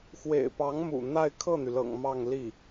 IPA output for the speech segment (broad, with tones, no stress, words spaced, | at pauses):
xwḛ˨˩ɪ̯ pɑ˧˥ŋmṵ˨˩ n̪a˥˧ɪ̯ kʰɤ˥˩n̪y˩lɤ̰˨˩ŋ mɑ˥˧ŋ li˥˩